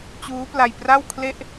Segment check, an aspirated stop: present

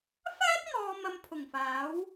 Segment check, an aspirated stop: present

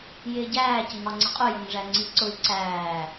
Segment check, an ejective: present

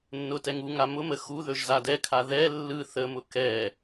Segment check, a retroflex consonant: absent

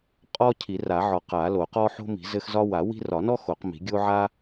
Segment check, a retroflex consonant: absent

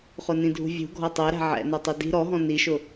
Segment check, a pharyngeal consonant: present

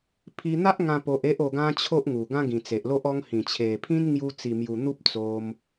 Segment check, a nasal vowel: present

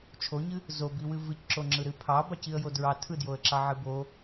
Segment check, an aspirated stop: present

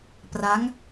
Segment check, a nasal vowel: absent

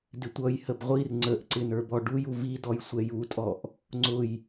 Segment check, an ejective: present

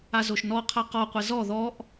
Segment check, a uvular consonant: present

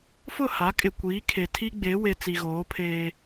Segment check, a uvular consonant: absent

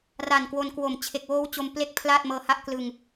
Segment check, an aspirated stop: present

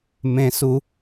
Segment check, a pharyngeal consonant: absent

